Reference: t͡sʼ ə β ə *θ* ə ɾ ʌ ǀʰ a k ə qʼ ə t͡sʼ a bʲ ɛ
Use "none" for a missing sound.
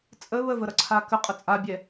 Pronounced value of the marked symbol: v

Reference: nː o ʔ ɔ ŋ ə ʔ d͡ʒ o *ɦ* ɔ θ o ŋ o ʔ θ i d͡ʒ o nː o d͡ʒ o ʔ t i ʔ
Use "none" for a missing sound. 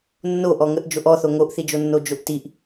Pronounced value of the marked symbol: ʔ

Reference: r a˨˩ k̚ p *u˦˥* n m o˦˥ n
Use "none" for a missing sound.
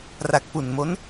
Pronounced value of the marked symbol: u˨˩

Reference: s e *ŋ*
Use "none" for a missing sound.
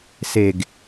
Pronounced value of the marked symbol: ɡ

